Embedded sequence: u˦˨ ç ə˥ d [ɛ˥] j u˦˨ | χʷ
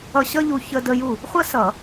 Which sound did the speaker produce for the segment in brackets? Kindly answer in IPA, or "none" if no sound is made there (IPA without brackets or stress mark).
ə˥